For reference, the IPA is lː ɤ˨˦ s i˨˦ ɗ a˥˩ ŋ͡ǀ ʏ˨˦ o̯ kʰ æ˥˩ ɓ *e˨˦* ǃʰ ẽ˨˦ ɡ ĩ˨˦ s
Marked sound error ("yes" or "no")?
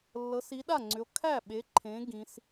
no